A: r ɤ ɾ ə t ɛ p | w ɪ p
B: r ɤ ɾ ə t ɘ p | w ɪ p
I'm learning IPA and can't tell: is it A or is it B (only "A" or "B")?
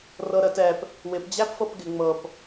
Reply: A